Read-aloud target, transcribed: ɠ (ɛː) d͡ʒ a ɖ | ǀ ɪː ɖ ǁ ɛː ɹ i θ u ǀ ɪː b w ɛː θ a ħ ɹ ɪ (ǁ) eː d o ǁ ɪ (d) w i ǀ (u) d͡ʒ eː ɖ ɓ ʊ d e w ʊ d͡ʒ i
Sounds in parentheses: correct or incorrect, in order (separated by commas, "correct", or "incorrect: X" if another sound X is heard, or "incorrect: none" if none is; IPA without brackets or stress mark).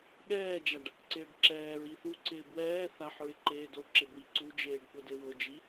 correct, incorrect: ǃ, incorrect: b, correct